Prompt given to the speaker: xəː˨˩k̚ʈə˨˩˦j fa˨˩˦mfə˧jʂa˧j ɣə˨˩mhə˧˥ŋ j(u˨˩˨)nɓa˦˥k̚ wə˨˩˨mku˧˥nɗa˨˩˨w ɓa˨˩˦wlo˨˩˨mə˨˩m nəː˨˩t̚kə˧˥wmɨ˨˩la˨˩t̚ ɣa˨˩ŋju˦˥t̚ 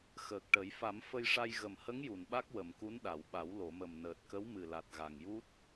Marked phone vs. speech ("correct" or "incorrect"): correct